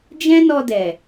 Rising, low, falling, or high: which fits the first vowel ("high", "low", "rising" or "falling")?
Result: high